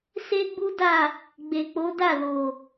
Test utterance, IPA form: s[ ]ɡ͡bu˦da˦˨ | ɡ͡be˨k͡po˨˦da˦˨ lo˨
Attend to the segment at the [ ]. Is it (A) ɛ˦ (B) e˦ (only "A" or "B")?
B